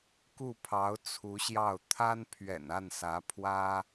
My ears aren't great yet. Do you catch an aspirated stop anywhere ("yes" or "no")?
yes